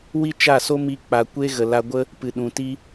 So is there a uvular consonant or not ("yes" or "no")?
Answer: no